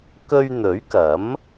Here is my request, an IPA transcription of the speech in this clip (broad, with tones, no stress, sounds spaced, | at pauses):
k ɵ˧ ɥ n̪ ɵ˨˥ ɥ k ɐ˨˥ m